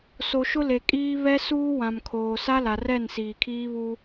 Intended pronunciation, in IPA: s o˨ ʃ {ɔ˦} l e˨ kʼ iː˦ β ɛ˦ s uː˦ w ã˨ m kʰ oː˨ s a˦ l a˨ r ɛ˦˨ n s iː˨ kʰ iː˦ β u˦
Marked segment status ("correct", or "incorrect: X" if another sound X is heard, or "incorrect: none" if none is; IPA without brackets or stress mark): incorrect: ʊ˦